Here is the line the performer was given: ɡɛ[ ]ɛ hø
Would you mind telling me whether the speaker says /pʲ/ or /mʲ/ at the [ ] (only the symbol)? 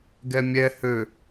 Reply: mʲ